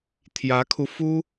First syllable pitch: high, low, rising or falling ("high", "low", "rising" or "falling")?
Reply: rising